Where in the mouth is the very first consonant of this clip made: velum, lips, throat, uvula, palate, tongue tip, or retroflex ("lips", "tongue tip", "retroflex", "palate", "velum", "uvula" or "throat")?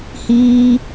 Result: throat